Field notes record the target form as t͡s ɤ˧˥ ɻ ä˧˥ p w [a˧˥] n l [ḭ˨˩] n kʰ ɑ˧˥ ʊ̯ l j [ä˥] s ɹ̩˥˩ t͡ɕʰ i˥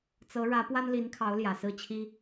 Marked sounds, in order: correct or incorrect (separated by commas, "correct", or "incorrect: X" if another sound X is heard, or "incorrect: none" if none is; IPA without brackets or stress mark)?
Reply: incorrect: a˥, incorrect: i˧˥, incorrect: ä˨˩